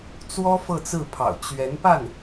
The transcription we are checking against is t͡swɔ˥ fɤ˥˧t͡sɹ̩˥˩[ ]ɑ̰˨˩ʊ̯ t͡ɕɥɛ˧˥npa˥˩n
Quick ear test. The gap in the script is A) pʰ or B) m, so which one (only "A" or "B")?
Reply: A